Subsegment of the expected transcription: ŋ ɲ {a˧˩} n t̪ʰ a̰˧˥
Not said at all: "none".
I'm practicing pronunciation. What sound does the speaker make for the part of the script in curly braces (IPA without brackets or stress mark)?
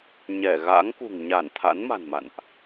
a˧˩